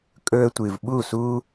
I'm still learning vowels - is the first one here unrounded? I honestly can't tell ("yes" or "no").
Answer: no